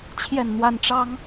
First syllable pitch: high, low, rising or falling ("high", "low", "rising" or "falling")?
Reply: falling